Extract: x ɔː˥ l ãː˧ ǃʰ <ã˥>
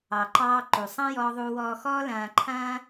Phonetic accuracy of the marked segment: incorrect: ãː˥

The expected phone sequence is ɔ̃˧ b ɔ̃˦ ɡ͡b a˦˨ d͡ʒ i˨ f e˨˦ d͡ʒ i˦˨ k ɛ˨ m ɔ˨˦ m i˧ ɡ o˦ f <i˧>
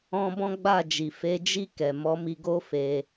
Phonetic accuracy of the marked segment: incorrect: e˧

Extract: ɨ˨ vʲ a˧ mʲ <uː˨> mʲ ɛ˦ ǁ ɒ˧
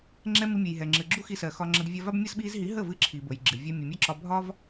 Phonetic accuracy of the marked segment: incorrect: u˨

